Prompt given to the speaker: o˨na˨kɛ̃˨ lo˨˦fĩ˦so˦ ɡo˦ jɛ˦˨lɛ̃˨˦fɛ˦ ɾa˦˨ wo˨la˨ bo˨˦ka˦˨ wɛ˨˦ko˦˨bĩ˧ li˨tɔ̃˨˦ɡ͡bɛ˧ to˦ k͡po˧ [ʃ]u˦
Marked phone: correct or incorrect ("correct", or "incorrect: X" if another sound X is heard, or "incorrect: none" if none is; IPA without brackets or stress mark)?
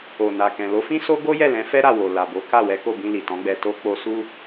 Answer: incorrect: s